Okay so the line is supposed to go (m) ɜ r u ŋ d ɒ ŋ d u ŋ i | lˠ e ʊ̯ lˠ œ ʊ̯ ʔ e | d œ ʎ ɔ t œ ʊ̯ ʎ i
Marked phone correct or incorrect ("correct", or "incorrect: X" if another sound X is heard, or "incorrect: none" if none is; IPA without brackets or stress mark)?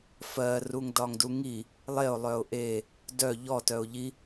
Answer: incorrect: f